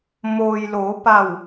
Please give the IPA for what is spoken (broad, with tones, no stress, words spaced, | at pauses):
mo˩j loː˩˧pa˧˩w